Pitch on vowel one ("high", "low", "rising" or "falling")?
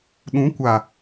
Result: rising